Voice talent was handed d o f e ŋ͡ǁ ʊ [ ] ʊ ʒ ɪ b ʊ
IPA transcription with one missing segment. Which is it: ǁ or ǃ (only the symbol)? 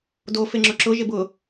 ǁ